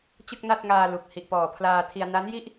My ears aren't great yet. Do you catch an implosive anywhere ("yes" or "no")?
no